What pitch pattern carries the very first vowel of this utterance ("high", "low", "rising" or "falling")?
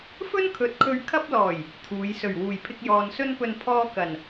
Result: high